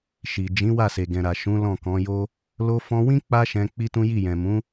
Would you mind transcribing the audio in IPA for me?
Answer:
ʃ i˨ d͡ʒ ĩ˨˦ w a˦˨ s e˨ ɡ ɛ̃˨ ɾ a˨ ʃ ũ˨˦ l ɔ̃˦˨ k ɔ̃˨˦ j o˦ | l o˧ f ɔ̃˧ w ĩ˦ k͡p a˦ ʃ ɛ̃˧ k͡p i˦ t ũ˦ j i˦˨ j ɛ̃˨ m ũ˨˦

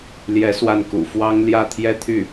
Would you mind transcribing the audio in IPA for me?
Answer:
l j ɛ˧˥ s w a˥˩ n k ṵ˨˩ f w ɑ˥ ŋ l j ä˥˧ t̪ʰ j ɛ˥˧ t̪ʰ y˥˩

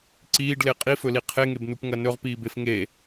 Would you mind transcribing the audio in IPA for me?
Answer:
ǀ iː ɖ l e qʼ i f ɵ l i qʰ e ŋ e b n u p ŋ ɐ n ɵ ʁ p iː b e f ŋ e

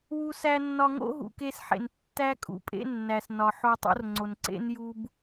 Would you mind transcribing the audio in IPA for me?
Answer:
w u˧ s æ˧ nː ɒ˧ ŋ o̰˦ ɦ ṵ˨ k e˧ s ħ ḛ˨ n tː æ˦ kʼ ṵ˨ pʼ ḛ˦ nː æ˨ s n ɒ˨ ħ o˧ tˤ o̰˦ r ŋ͡ǀ o˨ n ǀ ḛ˦ n j u˦ b

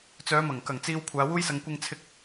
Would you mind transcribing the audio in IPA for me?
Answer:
t͡s œː˨˧ m ɐ˨˩ ŋ k ɐ˨˩ ŋ t͡s iː˨ w kʷʰ aː˨˧ w uː˥ j s ɐ˧ ŋ kʷ ɪ˧ ŋ t͡sʰ ɪ˧ k̚

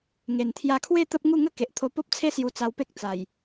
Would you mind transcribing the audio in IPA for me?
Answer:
ŋ e˨˩ n t̪ʰ j a˧ kʰ w e˥˧ t̪ ə˦ p̚ ŋ u˥˧ ŋ ə˦ k e˨ ʔ t̪ʰ o˧ p o˦ p̚ t͡sʰ e˦ s j u˧ t͡s a˧ w p e˦ k̚ t͡s a˨˩ j

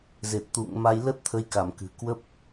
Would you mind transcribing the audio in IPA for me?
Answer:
z e˨˩ t̚ t̪ ṵ˧˨ ŋ m a˧ j l ə˦˥ t̚ t̪ʰ ə˨˦ j k a˧˩ m k ɨ̤˨˩ k w ə˦˥ p̚

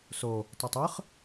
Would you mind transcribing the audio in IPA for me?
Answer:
s o | tˤ ʌ tˤ ɯ χ

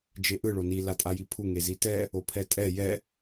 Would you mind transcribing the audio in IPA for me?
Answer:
d͡ʒ e ʔ ɯ ɭ o n i l a tʼ a j i pʰ u ŋ e z i t ɛ | o pʰ ɛ tʼ ɛ j ɛ

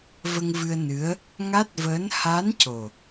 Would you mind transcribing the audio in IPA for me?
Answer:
v ə˧ ŋ v ɨ˧ ə̯ n ɨ˧˥ ə̯ | ŋ a˦˥ t̚ v əː˧˥ n h a˧˥ n c o˨˩

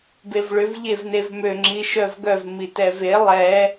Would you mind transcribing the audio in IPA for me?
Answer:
b e v ɭ ʏ v ʎ e v n e v m ø ŋ͡ǁ i ʃ œ v ɡ œ v m i t ɛ v e lˠ ɛ

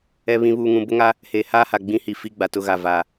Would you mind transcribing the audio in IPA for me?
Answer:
ɛ˨ β ĩ˨ β uː˨ ŋ ũ˨ b ʊ˦ ŋ a˦ | h eː˨ h aː˦ h a˨ ɡ͡b ĩ˦ h i˨ f i˦ ɡ͡b a˨ t ʊ˦ ɣ a˨ v aː˨

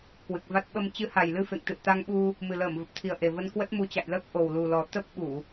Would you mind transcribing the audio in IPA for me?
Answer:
k w ɨ˨˩ k̚ v a˦˥ t̚ ɓ ə˧ m t͡ɕ ɨ˨˦ h a˨˩ j l ɨ˧ f ḛ˧˨ ŋ t̪ ɨ̰˧˨ ə̯ t̪ a˧ ŋ ɓ u˧ | m ɨ˨˩ l əː˧˩ m v ə˨˩ p̚ t̪ʰ i˨˩ ə̯ ʔ e˨˩ v ə˧ n k w ə˦˥ t̚ m u˨˦ t͡ɕ a̰˧˨ j l əː˦˥ k̚ ʔ o˨˩ w l u˨˩ l ɔ˨˩ t̪ ə˦˥ p̚ ɓ u˧˩˨

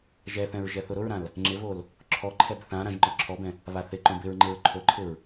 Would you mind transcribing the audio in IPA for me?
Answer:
ʒ ɛ θ ɛ̃ ɹ ʒ ɛ θ ʊ ɾ ʊ ɹ ɾ ã l | ŋ͡ǁ ɪ β o l | ǁʰ ɔ ǃʰ ɛ b θ ã ɾ ã ʒ ŋ͡ǃ ɔ ǁʰ ɔ b ɛ̃ | β a θ ɪ ǃ õ b ɪ ɹ ŋ͡ǃ ɪ ɹ ǃʰ o ǃʰ ɪ ɹ

